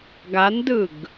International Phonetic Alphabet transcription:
ɡandɯɡ

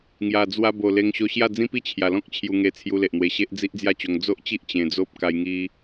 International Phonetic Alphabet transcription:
ŋja˨˩ d͡zwa˧bo˨˩ le˧ŋɕo˧ɕja˥˧ d͡zĩ˦pi˦ t͡ɕʰja˨˩lɔ̃˦k̚t͡ɕʰju˧ŋe˧ t͡sʰju˧le˨ʔn̪we˧ɕe˦ʔ d͡zi˦ʔd͡zja˥˧t͡ɕo˧ŋ d͡zo˦ʔt͡ɕi˦ʔ t͡ɕẽ˧d͡zo˦p̚ ka˧jŋi˧

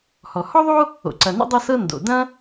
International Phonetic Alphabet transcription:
hɔ˩hɔ˥ðˤo˥ | o̰˩ǀɐ˩no̰˥ dˤɐ˥sɤ˥ ndo̰˩dɐ̃˥

